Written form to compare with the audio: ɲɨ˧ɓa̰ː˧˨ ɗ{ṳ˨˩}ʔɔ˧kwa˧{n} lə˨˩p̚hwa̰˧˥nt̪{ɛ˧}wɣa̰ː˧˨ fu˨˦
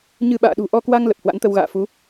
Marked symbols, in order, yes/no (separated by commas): yes, no, no